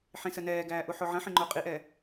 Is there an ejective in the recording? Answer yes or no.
yes